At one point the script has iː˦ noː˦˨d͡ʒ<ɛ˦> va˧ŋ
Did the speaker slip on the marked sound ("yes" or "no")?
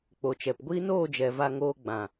yes